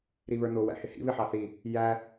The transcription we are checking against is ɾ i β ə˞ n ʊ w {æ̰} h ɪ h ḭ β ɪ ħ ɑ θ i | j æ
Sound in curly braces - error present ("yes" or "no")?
no